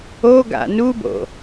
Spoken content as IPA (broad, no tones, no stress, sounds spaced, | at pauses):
o ɡ a̰ n u b o̰